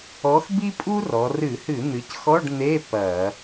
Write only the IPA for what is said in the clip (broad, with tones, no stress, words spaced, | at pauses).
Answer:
ɔ˨˥xbi˥pʼu˥rɔ˩˧ rɨ˧˩˧hɨ˧˩˧ n̪ɨ˩˧cxɔ˧˥˧ɖ n̪e˧˥˧ pɐ˧˩˧